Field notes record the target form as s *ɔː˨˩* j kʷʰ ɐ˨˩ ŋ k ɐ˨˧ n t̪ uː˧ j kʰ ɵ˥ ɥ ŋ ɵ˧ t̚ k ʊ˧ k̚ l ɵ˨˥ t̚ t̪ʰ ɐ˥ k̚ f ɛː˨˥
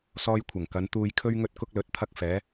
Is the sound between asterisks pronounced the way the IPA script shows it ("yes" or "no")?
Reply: no